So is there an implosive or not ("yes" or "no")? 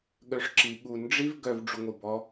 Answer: yes